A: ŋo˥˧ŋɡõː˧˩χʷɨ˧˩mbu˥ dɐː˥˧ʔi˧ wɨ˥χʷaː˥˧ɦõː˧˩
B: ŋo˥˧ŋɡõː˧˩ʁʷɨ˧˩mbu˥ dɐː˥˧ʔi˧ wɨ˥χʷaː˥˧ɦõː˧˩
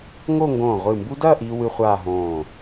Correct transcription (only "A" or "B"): B